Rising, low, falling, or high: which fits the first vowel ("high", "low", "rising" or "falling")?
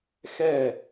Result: falling